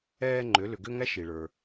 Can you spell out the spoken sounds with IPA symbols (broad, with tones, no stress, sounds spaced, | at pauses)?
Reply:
ɛː˧ ŋ͡ǃ ʏ˩˧ l ʏ˩ ɡ ʏ˧ ŋ æ˧˥ ʃ i˩ ɭ ə˞˩